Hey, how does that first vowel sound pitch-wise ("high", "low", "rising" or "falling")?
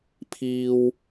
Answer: high